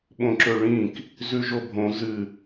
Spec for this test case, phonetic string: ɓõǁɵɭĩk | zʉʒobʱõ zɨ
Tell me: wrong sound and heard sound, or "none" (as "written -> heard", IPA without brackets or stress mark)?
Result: none